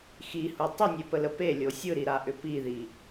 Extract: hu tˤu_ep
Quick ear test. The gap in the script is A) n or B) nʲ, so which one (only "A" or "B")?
B